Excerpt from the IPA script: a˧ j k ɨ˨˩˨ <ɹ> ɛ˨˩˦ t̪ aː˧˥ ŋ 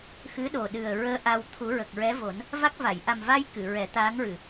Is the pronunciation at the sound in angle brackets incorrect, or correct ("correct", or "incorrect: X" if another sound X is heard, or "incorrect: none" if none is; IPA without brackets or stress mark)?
correct